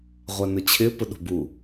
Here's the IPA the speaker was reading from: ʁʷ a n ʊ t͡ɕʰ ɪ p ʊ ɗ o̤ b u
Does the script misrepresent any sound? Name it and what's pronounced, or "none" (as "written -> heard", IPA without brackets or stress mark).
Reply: none